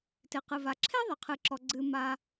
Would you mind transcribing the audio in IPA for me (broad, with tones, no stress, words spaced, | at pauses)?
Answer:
tɪ˩ qɨ˩va˩ ǁʰe˥ðˤɪ˩qʰɨ˩ ǁɔ˩ɡ͡ǀɨ˩ ma˩